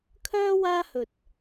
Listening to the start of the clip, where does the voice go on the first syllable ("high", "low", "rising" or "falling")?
high